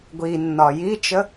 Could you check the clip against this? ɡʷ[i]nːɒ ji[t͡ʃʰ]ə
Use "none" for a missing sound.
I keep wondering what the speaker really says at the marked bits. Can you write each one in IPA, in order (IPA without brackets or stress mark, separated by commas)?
i, t͡ʃ